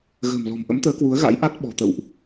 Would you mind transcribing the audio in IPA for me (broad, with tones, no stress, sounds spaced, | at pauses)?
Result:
ɣ ə̤ː˨˩ m l ɔ̤˨˩ m ʔ ə̰˧˥ m t̪ əː˨˦ k w u˨˦ ə̯ ɣ a̰˧˥ j ʔ a˦˥ t̚ ɓ ɔ̤˨˩ t̪ ə̰˧˨ w ʔ